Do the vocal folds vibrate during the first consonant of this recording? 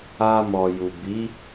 yes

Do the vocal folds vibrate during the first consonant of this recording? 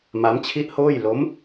yes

